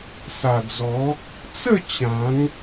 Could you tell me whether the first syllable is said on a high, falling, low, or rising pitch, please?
low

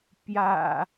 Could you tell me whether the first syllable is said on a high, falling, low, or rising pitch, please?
low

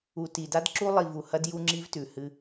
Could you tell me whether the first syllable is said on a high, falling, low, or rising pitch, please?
low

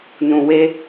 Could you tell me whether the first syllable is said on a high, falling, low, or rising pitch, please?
low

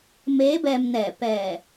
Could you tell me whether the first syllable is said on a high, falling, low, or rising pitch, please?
rising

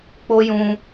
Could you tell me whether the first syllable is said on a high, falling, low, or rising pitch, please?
high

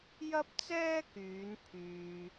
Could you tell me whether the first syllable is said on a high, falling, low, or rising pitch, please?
high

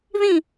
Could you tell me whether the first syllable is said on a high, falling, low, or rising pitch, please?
falling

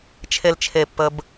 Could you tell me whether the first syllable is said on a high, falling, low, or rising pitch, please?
low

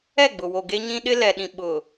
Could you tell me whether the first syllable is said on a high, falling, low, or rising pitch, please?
falling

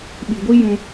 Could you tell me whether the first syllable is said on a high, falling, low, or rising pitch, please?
low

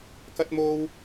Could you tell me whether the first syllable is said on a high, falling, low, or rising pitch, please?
high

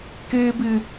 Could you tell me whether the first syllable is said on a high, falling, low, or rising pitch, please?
high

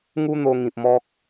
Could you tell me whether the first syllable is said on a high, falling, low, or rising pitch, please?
high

